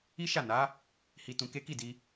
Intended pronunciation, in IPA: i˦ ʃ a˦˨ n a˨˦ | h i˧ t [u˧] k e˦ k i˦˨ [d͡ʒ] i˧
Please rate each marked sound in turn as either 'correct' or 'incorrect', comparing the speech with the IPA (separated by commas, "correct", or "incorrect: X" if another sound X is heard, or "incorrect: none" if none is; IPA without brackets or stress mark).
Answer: incorrect: ũ˧, incorrect: d